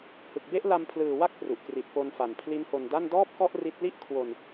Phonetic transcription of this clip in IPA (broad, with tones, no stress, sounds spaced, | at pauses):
h ɯ˨˩ k̚ b e˥˩ ʔ l a˧ m pʰ l ɯː˨˩ w a˦˥ k̚ p r u˨˩ ʔ k r i˨˩ t̚ p o˧ n f a˨˩ n pʰ l i˦˥ n h o˧ n d a˥˩ n d ɔː˥˩ p̚ k ɔ˥˩ ʔ r i˦˥ t̚ l i˥˩ ʔ kʰ w o˧ n